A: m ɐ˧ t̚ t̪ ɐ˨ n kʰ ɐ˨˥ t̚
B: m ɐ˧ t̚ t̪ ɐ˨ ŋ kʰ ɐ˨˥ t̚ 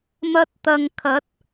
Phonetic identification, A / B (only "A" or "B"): B